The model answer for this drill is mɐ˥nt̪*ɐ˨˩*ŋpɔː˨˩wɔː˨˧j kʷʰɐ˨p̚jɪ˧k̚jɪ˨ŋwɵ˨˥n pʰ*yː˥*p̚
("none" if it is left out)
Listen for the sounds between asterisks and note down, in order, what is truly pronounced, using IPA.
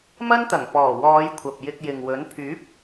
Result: ɐ˨˩, yː˨˥

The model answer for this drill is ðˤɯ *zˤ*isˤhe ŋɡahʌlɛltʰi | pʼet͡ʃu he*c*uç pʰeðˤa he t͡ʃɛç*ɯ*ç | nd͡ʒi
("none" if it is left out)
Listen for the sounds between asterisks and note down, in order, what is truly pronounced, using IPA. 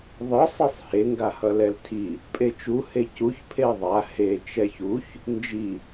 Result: sˤ, c, u

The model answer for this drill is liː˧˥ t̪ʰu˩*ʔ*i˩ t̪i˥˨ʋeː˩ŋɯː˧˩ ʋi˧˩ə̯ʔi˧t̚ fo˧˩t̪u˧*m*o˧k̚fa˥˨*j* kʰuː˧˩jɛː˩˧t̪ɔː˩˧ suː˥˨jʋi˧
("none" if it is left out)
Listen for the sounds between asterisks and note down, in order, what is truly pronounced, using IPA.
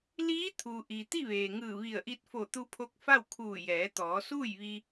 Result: ʔ, pʰ, w

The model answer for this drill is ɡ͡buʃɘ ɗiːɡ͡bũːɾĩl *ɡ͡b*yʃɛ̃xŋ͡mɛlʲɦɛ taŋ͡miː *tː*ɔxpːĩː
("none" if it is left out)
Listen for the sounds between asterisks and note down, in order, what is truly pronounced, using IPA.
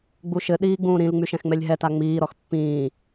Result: ŋ͡m, ɾ

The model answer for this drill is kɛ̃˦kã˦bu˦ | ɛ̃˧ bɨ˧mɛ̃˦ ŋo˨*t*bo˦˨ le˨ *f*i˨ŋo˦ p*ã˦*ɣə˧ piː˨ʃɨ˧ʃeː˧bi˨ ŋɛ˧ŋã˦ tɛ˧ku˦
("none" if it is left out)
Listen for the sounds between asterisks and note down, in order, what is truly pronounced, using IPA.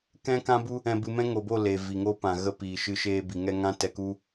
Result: none, v, ã˨

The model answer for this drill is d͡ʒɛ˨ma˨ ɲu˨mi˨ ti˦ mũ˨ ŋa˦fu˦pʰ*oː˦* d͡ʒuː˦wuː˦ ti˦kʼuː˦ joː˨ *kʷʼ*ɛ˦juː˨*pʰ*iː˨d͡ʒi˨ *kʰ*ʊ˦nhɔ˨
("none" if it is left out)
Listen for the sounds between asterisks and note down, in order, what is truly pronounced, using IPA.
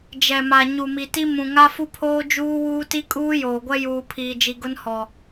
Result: oː˦, ɡʷ, pʰ, ɡ

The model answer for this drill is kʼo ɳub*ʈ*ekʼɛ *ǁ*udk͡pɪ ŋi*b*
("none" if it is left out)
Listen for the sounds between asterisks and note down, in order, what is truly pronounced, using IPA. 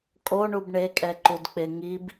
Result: ɳ, ǃ, b

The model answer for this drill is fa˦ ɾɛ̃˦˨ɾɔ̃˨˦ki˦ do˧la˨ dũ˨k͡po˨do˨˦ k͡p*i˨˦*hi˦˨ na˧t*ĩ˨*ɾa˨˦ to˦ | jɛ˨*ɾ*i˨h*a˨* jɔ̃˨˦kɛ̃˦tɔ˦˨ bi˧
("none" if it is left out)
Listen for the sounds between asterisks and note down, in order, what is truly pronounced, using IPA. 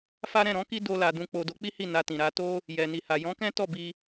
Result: i˦, ĩ˨, n, a˨

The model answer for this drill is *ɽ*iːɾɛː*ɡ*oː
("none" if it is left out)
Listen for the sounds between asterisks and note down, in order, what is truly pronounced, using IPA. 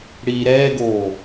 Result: ɽ, ɡ

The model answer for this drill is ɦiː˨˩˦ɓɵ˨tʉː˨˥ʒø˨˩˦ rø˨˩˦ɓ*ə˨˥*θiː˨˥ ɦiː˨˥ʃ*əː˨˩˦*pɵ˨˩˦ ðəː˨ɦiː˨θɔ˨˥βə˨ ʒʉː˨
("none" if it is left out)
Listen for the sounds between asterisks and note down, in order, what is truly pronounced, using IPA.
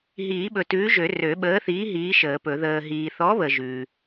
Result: əː˨˥, əː˨˩˦

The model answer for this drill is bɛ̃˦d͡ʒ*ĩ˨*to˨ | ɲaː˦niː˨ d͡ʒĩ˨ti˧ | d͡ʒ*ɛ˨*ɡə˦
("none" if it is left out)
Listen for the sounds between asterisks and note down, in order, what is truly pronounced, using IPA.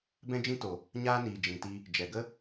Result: ĩ˦, ɛ˨

